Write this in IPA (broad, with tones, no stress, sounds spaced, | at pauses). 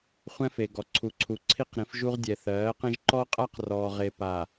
χʷ ɛ̃˦ f e˨ ɡ ɔ˨ ǀʰ u˨ ǀʰ u˨ ǀʰ i˦ q ɾ ĩ˨˦ f ʒ u˦ ʁ dʲ ɛ˨ θ ɜː˨˦ q ẽ˦ ʒ ǃ ɔ˦ qʼ a˦ q r ɔː˨ ʁ e˨ p a˨